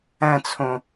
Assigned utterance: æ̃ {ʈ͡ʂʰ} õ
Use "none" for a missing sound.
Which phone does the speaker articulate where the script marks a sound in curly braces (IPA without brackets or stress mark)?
t͡sʰ